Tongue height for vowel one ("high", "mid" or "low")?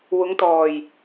high